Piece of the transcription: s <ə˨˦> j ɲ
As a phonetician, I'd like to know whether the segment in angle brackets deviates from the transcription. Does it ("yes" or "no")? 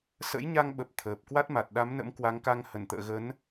yes